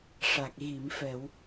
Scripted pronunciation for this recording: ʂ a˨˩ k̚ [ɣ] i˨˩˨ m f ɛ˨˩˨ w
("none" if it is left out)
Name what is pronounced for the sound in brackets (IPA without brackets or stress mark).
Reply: ɣ